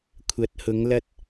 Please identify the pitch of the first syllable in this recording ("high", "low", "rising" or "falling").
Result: rising